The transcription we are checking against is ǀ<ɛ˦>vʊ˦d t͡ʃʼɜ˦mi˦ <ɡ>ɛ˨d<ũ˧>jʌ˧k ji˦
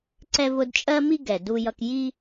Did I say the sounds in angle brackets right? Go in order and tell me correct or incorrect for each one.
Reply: correct, correct, incorrect

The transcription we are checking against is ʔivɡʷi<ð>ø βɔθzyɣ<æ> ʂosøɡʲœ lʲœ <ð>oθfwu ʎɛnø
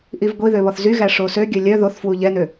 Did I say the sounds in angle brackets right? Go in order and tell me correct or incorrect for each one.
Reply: correct, correct, correct

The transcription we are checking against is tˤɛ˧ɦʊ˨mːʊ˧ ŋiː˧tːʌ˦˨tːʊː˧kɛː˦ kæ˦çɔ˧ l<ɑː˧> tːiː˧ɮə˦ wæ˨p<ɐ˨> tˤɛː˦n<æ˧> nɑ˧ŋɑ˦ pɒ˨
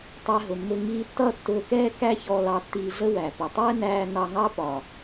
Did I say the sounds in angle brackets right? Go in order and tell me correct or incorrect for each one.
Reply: incorrect, incorrect, incorrect

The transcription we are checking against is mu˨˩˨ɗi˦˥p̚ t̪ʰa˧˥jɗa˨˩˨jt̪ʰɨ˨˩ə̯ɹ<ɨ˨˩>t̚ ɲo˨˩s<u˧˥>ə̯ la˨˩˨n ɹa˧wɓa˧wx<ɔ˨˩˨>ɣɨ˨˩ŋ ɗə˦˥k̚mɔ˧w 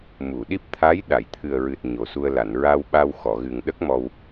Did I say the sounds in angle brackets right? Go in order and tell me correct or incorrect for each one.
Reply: correct, incorrect, correct

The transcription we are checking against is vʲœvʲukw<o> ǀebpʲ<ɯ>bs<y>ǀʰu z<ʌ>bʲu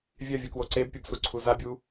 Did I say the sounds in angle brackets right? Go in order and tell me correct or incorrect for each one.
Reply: correct, incorrect, incorrect, incorrect

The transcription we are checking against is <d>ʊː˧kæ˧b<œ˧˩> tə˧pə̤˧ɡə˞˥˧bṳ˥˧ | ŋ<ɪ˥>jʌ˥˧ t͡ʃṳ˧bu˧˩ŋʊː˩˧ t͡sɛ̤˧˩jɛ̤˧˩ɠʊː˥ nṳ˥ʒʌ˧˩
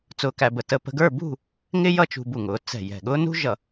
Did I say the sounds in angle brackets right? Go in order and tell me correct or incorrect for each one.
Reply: incorrect, incorrect, correct

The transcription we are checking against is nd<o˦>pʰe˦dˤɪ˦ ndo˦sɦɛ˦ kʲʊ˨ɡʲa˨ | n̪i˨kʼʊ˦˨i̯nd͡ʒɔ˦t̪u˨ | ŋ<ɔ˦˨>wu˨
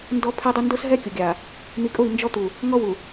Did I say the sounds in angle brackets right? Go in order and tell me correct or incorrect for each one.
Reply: incorrect, incorrect

